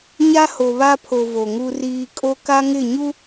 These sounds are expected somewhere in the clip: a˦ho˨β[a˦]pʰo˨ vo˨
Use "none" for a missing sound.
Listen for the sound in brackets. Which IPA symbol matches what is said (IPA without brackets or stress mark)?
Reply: a˦